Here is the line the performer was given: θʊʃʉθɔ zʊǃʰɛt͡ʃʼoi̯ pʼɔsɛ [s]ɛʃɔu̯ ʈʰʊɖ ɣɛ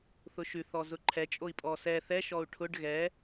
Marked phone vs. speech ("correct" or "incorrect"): incorrect